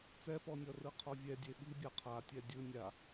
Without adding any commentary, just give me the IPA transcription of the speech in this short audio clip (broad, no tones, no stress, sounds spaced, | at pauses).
t͡s ɛ p ɔ nʲ ɔ r ɯ qʰ ɔ vʲ ɛ dʲ e ɓ i bʲ a qʰ a tʲ ɛ dʲ ɯ nʲ a